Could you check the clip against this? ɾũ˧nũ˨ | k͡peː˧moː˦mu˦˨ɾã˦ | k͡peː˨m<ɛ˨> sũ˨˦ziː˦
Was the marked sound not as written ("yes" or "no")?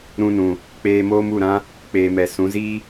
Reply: no